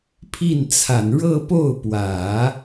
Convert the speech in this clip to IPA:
pʰi˥˩nt͡sʰa˨˩n ɻɤ˥˧po˥˩ʊ̯pwä˨˩˦

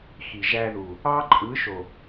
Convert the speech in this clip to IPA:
xi˨ʒæ˧ðu˨ | ɑ˦ǃʼɯ˨˦ʃo˨

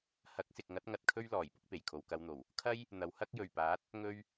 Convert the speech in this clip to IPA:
hɐ˨˥k̚sɪ˨k̚ŋɐ˨˥t̚ ŋɐ˨˥t̚kʰɵ˥ɥlɔː˨˩j pʊ˧k̚ pe˨˩jkʰo˨wkɐ˧wn̪o˨˩w | kʰɐ˥j | n̪ɐ˨˧whɐ˥k̚jɵ˨˩ɥ paː˨˥t̚ | ŋɵ˧ɥ

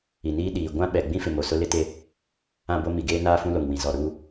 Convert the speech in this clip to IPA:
i˨niː˦ ɗiː˨ ɡʷã˦ɓɛ˨ɡ͡bĩ˦fɪ˨ mo˨sʊ˦lɪ˦te˦˨ | ã˦˨bo˦ mi˨ɡeː˦naː˦ fũ˦lo˨ŋwĩ˨ zɔ˨ɾuː˦

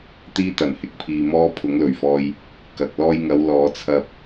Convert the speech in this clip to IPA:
t̪iː˥t̪ɐ˨˩n hɪ˨˥k̚pʰiː˧mɔː˥ pʰʊ˨˥ŋlɵ˨˩ɥfɔː˧j | kɐ˨k̚ lɔː˧jŋɐ˨˧w lɔː˨˧t͡sʰɐ˧p̚

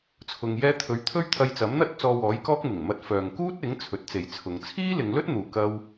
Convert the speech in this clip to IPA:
t͡sʰʊ˨ŋjɛː˧t̪ʰɵ˨˥ɥ t̪ʰɵ˥ɥt̪ʰɐ˧jt͡sɐ˨˥mn̪ɐ˥t̚ t͡sɔː˧wɔː˨˥jkɔː˥k̚ mɪ˨˩ŋmɐ˧t̚ fœː˨ŋkuː˥t̚ɪ˨˥ŋ t͡sʰɵ˨˥t̚t͡se˨˧jt͡sʰʊ˨˧ŋ t͡sʰiː˥lɪ˨˧ŋlɵ˥t̚n̪uː˨ kɐ˥w

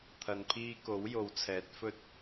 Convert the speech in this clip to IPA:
t̪ʰɐ˨˧npʰiː˧ko˨˥w jo˨˧wt͡sʰɛː˨˥t̚ fɵ˨t̚

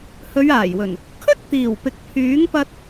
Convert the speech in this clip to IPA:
hɵ˨˧ɥaː˨˩jwɵ˨˩n | kʰɵ˥t̚t̪iː˨˩w pɪ˨k̚pʰyː˨˥ŋpɐ˧t̚

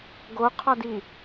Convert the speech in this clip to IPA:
ɡoqʰɒdi

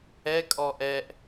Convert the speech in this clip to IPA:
ɛkʼɔ ʔɛʔ

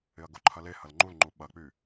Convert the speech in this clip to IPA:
ɪɐ̯ɡoǃʰɐle hɐlŋ͡ǃulŋ͡ǃu ɓɐk͡py

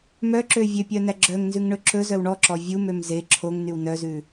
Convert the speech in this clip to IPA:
mœǁø vʲøpʲœ næɡ͡ǁœŋnzʉŋ ɳɵǁɵzœw ɳɔǁɔ vʲumøm ze ǁʰoŋnyw nœzʉ

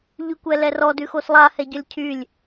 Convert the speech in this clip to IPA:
ʎykʷɛlɛrɔ dʉxoslˠa hɛɟɔlʲcʰylʲ

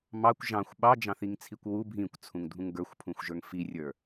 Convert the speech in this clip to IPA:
mɑkʷ ʒɑ̃xʷ ɓɑd͡ʒɑ̃θiŋt͡sʰikʷ wu bʱĩkʷt͡sʰũŋdʱũŋ ɡə˞xʷpʰũxʷʒə˞ŋ firʲə˞

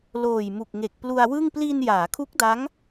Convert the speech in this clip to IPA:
loː˨˩jmu˨˩k̚ŋe˨˩k̚plu˧a̯ wɯ˥˩ŋ pli˧n jaː˩˦kʰu˦˥k̚da˦˥ŋ

